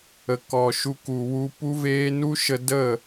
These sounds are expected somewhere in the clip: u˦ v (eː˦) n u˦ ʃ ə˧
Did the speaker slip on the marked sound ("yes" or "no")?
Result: no